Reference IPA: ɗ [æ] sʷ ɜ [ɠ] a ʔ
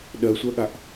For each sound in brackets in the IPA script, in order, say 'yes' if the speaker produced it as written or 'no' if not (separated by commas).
no, yes